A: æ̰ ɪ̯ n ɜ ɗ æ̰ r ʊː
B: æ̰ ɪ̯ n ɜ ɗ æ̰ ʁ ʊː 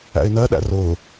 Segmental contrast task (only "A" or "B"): A